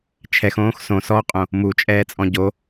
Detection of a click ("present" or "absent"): absent